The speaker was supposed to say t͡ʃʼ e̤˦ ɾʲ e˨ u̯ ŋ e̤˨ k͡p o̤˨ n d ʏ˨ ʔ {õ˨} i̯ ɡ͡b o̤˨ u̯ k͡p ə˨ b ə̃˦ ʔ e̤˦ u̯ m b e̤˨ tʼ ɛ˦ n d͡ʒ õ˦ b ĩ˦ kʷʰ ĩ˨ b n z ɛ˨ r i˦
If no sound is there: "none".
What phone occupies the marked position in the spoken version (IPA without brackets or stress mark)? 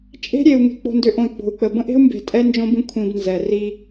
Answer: õ˨